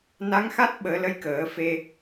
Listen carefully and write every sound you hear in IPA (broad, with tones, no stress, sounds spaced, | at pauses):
n a˧˥ ŋ x a˦˥ t̚ ɓ əː˨˩˦ l ə˧˥ j k əː˨˩˦ f e˧